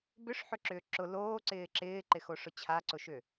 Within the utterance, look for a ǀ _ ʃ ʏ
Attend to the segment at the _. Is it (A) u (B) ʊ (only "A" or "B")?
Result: B